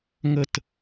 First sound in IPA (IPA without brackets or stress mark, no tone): ŋ